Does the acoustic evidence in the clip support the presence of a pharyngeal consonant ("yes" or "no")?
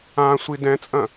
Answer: no